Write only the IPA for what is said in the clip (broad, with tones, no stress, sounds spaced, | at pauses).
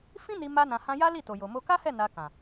f ĩ˦ n i˧ m a˧ n ã˨ h ã˧ j a˦ l i˦˨ t o˨ j o˨ m o˧ k a˦ h ɛ˦˨ n a˧ k ã˨